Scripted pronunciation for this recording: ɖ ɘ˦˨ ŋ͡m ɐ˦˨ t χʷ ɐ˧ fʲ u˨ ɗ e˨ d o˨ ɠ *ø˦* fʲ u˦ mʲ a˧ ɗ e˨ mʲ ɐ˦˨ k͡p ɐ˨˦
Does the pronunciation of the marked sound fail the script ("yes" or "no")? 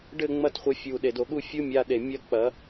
yes